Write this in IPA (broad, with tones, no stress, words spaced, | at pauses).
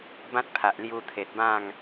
bã˦t̚ pʰa˨ʔlju˧t̪ʰe˨t̚bã˥˧ŋ